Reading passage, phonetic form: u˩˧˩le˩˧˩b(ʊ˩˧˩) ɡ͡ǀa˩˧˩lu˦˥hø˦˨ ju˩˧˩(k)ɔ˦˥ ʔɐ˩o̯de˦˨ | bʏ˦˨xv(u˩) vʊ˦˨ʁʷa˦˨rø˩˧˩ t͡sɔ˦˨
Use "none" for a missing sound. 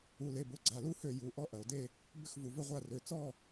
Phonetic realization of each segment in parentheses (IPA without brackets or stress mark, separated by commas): ʊ˩˧˩, ʔ, u˩